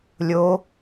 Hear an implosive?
no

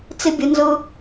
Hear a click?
no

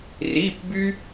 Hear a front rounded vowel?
yes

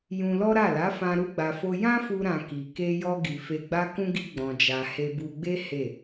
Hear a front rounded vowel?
no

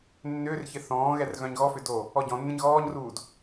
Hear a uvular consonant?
no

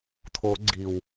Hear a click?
yes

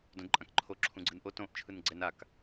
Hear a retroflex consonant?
no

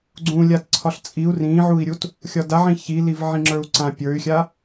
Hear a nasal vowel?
yes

